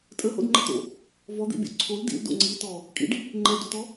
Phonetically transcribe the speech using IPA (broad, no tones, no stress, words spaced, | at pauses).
tʼəho̰dŋ͡ǃət̪o̰ | vɔd̪ḭbʲo̰ ǀʰol dḭldo̰ ŋ͡ǀitɔ | kʼḭɖi | ŋ͡ǃɛdotɔ